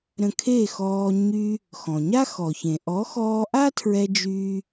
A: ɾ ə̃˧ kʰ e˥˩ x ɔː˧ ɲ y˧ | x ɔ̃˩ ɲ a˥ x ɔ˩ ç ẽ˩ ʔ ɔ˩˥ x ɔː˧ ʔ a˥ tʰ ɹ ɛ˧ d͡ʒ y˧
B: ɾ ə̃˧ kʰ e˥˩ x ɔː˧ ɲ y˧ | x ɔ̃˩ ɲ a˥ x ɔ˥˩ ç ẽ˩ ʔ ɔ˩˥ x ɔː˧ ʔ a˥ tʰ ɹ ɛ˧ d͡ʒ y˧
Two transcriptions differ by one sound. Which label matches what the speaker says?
A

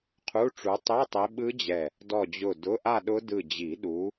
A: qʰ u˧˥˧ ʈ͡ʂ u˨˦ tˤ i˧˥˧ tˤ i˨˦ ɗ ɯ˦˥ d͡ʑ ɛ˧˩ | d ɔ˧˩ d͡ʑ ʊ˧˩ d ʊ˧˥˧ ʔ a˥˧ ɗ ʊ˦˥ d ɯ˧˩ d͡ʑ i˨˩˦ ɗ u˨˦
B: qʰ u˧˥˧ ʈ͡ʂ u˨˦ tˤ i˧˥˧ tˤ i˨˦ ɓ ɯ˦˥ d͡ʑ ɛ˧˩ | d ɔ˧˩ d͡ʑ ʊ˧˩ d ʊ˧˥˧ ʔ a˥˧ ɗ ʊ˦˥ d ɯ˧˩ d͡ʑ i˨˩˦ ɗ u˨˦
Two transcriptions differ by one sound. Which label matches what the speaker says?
B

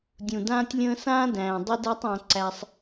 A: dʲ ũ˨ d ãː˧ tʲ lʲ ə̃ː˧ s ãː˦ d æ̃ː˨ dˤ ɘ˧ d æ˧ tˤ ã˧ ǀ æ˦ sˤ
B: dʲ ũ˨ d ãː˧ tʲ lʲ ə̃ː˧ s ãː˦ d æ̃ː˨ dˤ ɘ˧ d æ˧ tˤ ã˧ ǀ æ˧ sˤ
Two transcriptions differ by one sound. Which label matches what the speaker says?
B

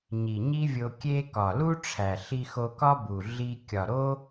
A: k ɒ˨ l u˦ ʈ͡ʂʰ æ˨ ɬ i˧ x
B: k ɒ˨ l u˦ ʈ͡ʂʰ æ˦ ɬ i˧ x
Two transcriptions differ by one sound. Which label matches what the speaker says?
A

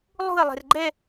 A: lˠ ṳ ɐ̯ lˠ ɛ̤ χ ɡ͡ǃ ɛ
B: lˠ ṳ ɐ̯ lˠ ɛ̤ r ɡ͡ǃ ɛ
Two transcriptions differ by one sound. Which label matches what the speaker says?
B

